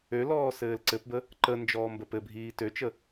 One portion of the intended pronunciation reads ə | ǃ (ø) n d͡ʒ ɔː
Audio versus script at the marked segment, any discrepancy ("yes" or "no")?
yes